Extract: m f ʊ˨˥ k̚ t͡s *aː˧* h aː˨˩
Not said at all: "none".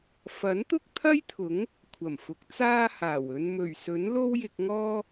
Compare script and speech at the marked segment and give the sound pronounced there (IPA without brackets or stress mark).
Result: aː˧